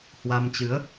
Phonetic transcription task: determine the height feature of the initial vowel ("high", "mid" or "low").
low